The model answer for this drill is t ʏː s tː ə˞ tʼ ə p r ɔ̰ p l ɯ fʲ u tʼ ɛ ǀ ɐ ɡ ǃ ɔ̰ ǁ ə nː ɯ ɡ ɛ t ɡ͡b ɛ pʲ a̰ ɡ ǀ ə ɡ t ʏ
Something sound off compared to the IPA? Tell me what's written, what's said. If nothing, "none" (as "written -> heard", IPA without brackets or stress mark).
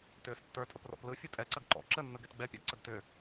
none